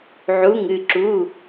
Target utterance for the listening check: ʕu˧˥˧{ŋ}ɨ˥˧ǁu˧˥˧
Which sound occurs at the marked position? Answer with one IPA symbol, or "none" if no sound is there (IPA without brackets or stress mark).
ŋ